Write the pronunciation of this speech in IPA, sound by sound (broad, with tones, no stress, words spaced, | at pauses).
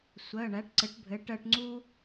sʷɜ˩˧˩ɳæ˩˥ʈ ǀɘ˩˥ʈbʱɘ˩˥ʈɜ˧ʈ ŋ͡ǀu˥